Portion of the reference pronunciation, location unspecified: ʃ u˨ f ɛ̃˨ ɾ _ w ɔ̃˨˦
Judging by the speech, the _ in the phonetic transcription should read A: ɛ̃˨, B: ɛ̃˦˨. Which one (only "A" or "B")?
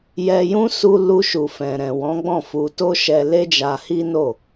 A